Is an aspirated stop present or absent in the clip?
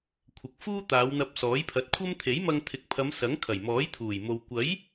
present